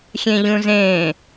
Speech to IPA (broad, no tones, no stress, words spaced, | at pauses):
xʲẽʎũzẽ